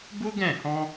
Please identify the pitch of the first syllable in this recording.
high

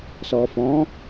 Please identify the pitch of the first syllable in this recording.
low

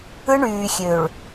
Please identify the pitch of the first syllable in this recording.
high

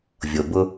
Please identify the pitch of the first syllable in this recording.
low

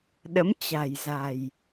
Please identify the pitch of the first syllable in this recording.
rising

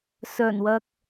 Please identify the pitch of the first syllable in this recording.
low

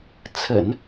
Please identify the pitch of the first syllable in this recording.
low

